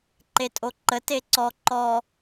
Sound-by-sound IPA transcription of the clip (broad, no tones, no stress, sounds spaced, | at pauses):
ǃ e tʼ o ǃ ə t e ǀ ɔ ǃ ɔ